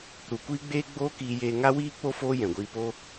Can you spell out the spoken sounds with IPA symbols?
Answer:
ɾ u˨ kʷ iː˦ ɡ͡b eː˦ ɡ͡b oː˦ k iː˧ j eː˧ ŋ a˦ w iː˦ k͡p o˦ f oː˦ j ɛ̃˨ ɡʷ iː˧ p o˦

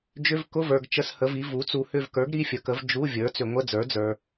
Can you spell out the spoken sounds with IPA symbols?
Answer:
d͡ʒ ʏ˧˥˧ v k ʊ˧˥˧ v ə˞˨ ɡ t͡ʃ ə˧˥˧ s h ə˩˥ v i˩˥ v u˩˥ t͡s u˨ h ʏ˦˨ v k ə˞˩˥ ɡ ɾ i˧˥˧ fʲ ə˩˥ k ə˩˥ v d͡ʒ u˧˥˧ vʲ ə˞˩˥ t͡s ʏ˨ ŋʷ ə˧˥˧ d͡z ə˞˩˥ d͡z ə˞˨

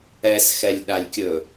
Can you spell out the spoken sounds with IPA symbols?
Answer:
ɛ s x ɛ lʲ ɗ a lʲ kʲ ɵ

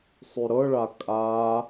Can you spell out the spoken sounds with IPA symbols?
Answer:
sˤ y ɾ ɤ ɭ a kʼ a

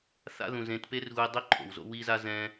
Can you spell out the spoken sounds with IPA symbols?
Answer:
θ a̰˦ ð ũ˨ z ẽ˨˦ t p e˦ r ɣ u˧ i̯ dˤ i˦ ǃʰ o̰˨ w z o̰˦ w i˦ z a˦ z ɛ̃˦

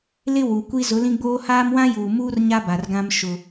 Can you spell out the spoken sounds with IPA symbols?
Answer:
l ɪ˦ w u˨ kʷ i˦ z ʊ˨˦ l ĩ˦ ɡ͡b oː˦ h aː˦ m w ã˦ j uː˨ m uː˦ r ɲ a˦ b a˨ r ɡ ã˦ m ʃ ʊ˦

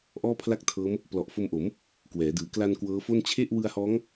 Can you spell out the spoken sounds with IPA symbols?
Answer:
ʔ ɔː˥˩ pʰ l a˥˩ k̚ tʰ ɤː˦˥ m | p l ɔ˨˩ ʔ f o˧ m ʔ o˩˦ m | k w ɛː˩˦ d ɯː˩˦ k l a˧ n k w ɤː˦˥ f o˥˩ n t͡ɕʰ e˥˩ ʔ w ɯ˧ a̯ h ɔː˦˥ ŋ

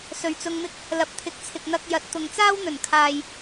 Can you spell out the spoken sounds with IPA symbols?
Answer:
s ɵ˨ ɥ t͡s ʊ˧ ŋ m ɪ˥ k̚ | l ɐ˨˥ p̚ t̪ʰ ɪ˨˥ k̚ t͡sʰ ɪ˨ k̚ n̪ ɐ˧ k̚ j ɐ˨˥ t̚ t̪ ʊ˨ ŋ t͡s aː˥ w n̪ ɵ˨˩ n kʰ aː˨ j

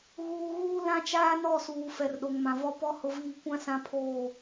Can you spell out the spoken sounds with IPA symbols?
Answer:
ɣ uː˨ ɣ uː˦ l ã˦ t͡ʃ aː˦ n ɔ˦˨ s uː˨ f ɛ˨ r ɗ o˨ ŋ m ã˨ v ɔ˦ p ɔ˦ h ʊ˦ v iː˦ kʷ ã˦ s ã˦ pʰ oː˦˨

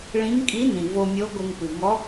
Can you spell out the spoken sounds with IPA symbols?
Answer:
ɭ ĩ˧˥ ŋ kʼ i˧˥ n ĩ˩ v o˧ mʲ o˧˥ ɡʷ ɘ˧ ŋ p ɨ˩ ŋ ɔ˧˥

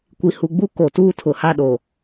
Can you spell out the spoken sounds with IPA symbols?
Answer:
kʷ i˨ h u˨ ɡ͡b u˦ k o˨ t uː˦ tʰ ʊ˨ h a˦ ɗ o˨

